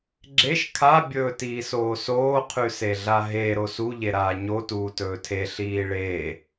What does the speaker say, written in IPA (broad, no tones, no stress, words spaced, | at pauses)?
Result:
ɡ͡ǁeʃ kʰa bʲɵːtiːsoːsoː qʰʉseɮaɦe ɾosu ʎeɾaːɲo tuːtɵːtʰe ɬiːɭeː